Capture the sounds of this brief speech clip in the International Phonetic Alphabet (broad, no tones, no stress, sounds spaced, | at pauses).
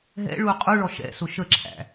ɦ ɛ̰ ɭ u qʼ u ɭ ɔ ʃ ɛ̰ s ʊ ʃ ə ǁʰ æ̰